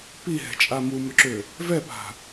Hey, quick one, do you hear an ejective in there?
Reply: yes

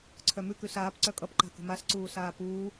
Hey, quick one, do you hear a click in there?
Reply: yes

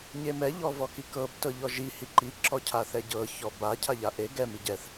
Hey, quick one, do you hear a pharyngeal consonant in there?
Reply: no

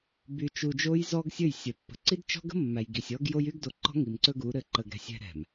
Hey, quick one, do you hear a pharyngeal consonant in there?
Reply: no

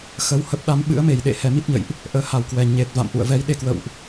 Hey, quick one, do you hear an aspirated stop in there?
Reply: no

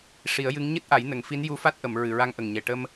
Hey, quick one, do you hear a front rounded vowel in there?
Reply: no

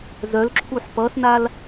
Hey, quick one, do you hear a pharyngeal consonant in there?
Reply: yes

